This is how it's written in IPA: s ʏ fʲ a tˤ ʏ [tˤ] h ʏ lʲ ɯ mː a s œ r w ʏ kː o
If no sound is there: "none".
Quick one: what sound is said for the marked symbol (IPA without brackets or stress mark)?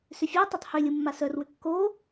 tˤ